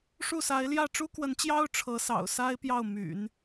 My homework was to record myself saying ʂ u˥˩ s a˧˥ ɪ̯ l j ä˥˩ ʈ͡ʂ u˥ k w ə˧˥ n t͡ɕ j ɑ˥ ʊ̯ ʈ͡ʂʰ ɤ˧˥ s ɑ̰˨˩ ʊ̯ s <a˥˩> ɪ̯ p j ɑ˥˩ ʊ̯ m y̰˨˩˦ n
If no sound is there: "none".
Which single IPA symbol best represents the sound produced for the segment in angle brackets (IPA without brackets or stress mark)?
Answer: a˥